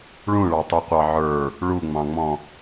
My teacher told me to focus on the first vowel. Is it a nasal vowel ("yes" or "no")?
yes